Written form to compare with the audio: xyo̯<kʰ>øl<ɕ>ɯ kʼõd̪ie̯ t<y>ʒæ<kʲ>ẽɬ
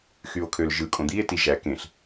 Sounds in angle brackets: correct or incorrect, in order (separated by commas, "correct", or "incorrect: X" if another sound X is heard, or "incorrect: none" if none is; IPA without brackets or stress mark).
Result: correct, incorrect: ʒ, incorrect: i, incorrect: k